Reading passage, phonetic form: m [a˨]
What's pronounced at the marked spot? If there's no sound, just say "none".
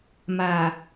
a˨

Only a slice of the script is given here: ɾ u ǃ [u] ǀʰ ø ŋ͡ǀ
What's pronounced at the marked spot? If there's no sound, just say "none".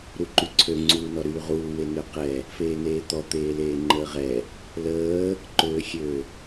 y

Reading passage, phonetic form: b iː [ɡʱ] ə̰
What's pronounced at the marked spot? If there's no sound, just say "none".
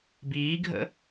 ɡʱ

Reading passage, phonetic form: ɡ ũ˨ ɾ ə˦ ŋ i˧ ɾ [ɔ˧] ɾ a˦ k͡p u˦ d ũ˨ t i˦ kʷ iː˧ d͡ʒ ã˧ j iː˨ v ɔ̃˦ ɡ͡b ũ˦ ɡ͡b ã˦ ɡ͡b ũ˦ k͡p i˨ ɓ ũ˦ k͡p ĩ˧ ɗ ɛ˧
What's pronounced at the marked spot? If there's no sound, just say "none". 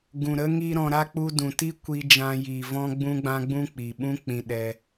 ɔ̃˧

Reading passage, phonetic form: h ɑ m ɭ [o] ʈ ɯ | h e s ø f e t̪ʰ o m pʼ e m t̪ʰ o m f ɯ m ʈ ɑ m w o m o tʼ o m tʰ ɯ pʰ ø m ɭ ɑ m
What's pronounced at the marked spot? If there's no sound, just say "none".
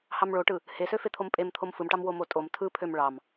o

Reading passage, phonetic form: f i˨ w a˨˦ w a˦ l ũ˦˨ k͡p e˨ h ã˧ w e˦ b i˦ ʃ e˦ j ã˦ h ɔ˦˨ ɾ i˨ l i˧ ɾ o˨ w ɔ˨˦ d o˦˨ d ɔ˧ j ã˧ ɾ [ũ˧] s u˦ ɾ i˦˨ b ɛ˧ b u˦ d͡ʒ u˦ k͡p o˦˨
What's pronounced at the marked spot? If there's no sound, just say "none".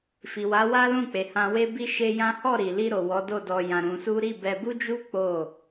ũ˧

